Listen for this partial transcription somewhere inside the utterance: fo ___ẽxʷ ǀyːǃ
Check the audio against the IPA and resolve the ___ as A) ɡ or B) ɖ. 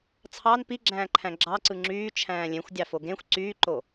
A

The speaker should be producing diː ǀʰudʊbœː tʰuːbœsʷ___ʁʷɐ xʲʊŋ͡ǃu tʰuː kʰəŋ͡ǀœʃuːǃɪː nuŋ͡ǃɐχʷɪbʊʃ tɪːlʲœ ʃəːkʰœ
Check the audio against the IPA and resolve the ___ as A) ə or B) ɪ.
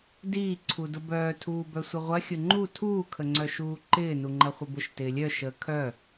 A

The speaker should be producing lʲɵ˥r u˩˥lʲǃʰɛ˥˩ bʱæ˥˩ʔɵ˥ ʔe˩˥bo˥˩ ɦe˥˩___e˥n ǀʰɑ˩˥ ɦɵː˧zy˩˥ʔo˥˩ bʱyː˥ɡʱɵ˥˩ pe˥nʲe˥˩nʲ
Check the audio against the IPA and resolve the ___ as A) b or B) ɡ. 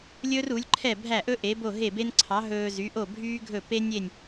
A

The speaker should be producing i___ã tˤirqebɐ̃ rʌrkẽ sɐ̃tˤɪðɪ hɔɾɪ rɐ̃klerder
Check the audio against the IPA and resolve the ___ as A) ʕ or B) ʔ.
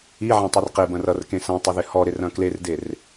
A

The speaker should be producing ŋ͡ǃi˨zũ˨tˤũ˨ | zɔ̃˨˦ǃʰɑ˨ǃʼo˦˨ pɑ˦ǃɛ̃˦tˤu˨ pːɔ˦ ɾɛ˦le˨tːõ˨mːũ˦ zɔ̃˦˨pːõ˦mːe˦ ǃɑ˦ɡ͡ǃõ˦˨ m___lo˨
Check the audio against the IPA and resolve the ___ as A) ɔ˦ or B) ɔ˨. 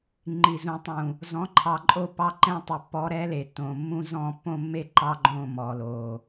B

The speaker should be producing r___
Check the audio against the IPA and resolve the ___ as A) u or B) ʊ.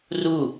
A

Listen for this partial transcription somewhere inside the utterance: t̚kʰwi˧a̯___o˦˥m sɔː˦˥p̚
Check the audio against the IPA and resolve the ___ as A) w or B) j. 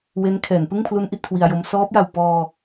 B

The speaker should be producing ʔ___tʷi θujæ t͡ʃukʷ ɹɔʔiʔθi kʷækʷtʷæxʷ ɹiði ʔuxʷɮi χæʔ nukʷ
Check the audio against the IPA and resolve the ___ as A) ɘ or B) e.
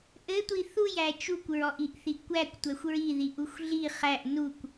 A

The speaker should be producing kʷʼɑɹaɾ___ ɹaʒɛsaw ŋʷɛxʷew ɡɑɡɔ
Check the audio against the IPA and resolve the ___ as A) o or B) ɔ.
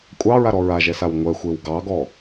B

